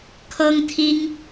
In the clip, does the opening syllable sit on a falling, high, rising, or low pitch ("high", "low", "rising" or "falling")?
high